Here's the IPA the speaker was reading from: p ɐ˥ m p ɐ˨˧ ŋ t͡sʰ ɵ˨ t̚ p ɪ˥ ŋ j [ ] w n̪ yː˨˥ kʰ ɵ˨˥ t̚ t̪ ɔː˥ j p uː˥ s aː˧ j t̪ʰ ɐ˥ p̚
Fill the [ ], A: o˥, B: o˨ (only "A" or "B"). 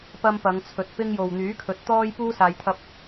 B